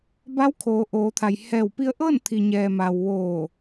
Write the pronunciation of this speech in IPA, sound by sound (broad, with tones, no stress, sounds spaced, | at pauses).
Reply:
b a˧˥ w kʰ oː˩˧ ʔ oː˩˧ t̪ʰ a˩ j h ɛː˧˩ w p i˧ ə̯ ʔ ɤː˥˨ n t̪ʰ i˩ ɲ ɛː˩ m a˩ w ʋ oː˧˩